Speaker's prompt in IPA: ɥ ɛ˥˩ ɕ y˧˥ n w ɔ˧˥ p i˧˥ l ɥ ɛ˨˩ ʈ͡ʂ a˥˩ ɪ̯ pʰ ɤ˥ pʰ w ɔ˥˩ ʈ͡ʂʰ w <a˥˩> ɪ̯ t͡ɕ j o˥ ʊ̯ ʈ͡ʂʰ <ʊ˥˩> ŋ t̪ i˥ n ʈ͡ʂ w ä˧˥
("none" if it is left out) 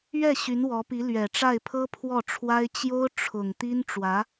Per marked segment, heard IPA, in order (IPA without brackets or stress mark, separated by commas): a˥, ʊ˨˩